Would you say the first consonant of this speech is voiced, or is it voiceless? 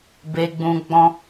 voiced